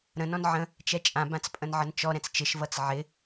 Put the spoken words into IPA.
ɾə̃ nɔ̃nʕə̃ | t͡ʃɛt͡ʃʼã bãt͡spʼə̃nʕənt͡ʃɔ ɾɛ̃t͡st͡ʃɪʃ vʌt͡sʕɪ

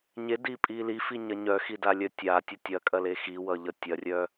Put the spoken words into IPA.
ɲedipʼi lifiɲɐ ɲœxidalʲœ tʲatʲʌ tʲɐkʼɐle xiwʌʎʌ tʲɐrʲœ

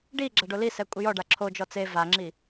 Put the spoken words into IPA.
ɖi ɡ͡ǁaɖolisɛ kʷʼɪjɔɖa ǁʰod͡ʒɔ t͡se vaŋ͡ǁi

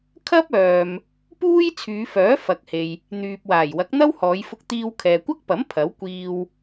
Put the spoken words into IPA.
kʰɐ˥p̚ œː˨m | puː˥j t͡sʰyː˨˧fœː˨˥ fɐ˨k̚he˨j | n̪yː˨p̚ waː˨˩jwɐ˨˥k̚n̪ɐ˥w hɔː˨˧jfʊ˧k̚t̪iː˧wkʰɛː˨ kʷɐ˥k̚pɐ˨˥m pʰɐ˨˥w kʷiː˧w

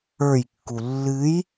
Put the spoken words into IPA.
ə˞jkːu lːɨj

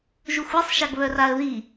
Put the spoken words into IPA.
ʒuxʷɛsˤ ʃaɡβœraə̯ði

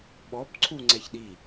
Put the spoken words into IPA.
ɓɔb ǀʰu ŋ͡ǀɛçɗi

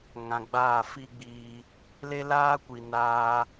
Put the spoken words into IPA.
ŋã˧ɡ͡baː˦˨ fi˦ɡ͡biː˧ | le˦laː˦ kʷi˨ naː˧

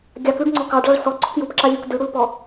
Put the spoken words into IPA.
ɡʲɑkʉɖŋ͡ǀɔ kɑɖɭɑɭ sɔɡ͡ǀɔk jupǁalʲuk dʉɽulpɔ

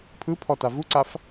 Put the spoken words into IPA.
pʰɯpʰɔta vuǀaf

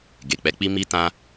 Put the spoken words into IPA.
ɡe˨k͡pɛ˨˦k͡pi˦ mi˦tã˦

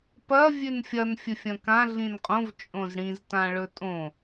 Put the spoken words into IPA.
pɐ vʲʉnfʲɐn fʲɵfʲɐ̃kã ɮĩnqʼõv t͡ʃʼõzɽĩztã ɭɵtʼõ

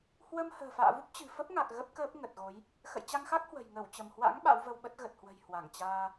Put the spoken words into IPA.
hwə˧m hə̤ː˨˩fa̰ː˧˨vu˦˥p̚ t͡ɕɨ̤˨˩fə˦˥p̚ŋa˨˩k̚ ɣə˦˥p̚kəː˦˥p̚ŋə˨˩t̚ɣo˨˦j | xə̰˧˨jt͡ɕa˧ŋxa˦˥k̚ hwə̤˨˩j ŋə˧˩wt͡ɕə˧˩mhwa̰˧˥ŋ ɓa̰˧˥wvə˧wɓə˦˥t̚ ɣə˨˩t̚hwə̤˨˩j hwa˧˩ŋt͡ɕaː˧

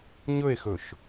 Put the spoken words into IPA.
ɲɵe̯xɵʃ

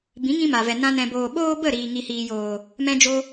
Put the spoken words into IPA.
bĩ˨˦ŋĩ˧ ma˨vɛ˨ nã˦nɛ̃˧boː˧ ɓoː˦bə˦˨ ɾiː˨ŋi˨hiː˨joː˨ | mɛ̃˦d͡ʒo˦

